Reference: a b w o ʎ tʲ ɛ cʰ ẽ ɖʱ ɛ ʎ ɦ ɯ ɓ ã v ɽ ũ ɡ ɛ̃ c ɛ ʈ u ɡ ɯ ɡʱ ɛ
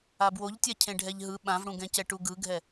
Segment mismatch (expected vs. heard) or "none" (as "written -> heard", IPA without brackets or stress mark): none